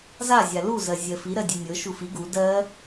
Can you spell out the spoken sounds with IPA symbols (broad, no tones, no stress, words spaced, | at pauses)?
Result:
za zʲalu zɜzʲɜfi ɾɜdʲenʲɤ ʃufi ɡu dɜ